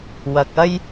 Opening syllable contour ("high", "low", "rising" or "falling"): low